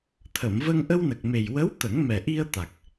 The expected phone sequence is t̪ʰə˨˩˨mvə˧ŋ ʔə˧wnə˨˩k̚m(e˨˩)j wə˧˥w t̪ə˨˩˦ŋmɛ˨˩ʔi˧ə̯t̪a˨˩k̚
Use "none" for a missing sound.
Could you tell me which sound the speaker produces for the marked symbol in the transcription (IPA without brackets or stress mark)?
e˨˩